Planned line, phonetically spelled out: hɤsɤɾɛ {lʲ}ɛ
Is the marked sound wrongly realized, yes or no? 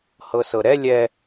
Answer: no